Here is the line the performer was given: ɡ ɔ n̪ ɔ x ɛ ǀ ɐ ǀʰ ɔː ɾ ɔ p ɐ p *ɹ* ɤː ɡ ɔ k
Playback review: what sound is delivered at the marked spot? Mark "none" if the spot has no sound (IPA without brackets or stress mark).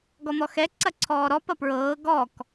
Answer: ɹ